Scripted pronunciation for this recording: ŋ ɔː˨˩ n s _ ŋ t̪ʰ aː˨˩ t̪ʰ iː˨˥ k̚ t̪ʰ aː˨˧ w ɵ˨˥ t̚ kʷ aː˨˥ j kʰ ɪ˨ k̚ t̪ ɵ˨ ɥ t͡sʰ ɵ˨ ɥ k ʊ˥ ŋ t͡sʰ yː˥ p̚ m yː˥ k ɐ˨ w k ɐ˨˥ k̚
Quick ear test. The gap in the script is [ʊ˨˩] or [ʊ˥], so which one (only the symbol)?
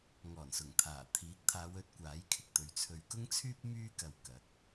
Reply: ʊ˨˩